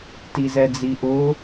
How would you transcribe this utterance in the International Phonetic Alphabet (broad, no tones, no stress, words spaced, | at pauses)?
tizɛd͡ziʔʊ